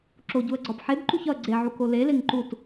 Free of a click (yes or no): no